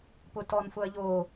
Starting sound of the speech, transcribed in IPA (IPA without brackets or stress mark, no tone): p